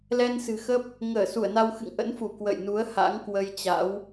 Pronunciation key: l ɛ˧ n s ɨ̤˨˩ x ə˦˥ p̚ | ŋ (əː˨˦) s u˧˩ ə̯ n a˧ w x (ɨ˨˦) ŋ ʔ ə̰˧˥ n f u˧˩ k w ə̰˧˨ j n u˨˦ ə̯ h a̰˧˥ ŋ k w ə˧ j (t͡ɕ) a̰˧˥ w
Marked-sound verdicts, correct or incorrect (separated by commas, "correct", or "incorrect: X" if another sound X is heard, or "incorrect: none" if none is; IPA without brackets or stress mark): incorrect: əː˧˩, incorrect: ɨ̰˧˨, correct